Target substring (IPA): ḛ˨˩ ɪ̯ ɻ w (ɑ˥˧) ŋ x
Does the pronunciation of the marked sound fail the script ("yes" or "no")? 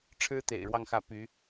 no